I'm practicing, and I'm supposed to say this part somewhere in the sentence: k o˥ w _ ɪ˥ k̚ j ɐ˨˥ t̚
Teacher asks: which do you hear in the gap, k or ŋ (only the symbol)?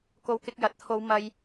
k